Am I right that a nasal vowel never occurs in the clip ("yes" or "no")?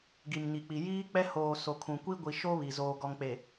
no